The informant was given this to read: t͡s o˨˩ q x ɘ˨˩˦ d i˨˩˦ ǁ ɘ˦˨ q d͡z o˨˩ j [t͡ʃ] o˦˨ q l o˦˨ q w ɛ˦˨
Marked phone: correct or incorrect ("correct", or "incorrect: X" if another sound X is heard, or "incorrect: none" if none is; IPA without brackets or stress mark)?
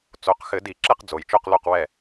correct